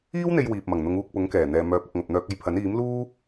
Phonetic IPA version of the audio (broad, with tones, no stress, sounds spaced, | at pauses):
iː˥ w n̪ e˧ j w iː˨ p̚ m ɐ˨˩ ŋ n̪ ʊ˨˧ ŋ uː˧ k̚ p ʊ˨˥ ŋ k ɛː˨˩ n̪ ɛː˨ m œː˨˥ p̚ ɐ˨ k̚ ŋ ɐ˨ p̚ n̪ œː˧ k̚ ɐ˧ j pʰ ɐ˨˥ n iː˨˥ m l uː˥